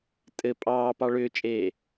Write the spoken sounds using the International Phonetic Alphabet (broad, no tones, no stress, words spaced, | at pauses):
tʼɘ pʼɑːpɑ ɭʏːt͡ʃʼeː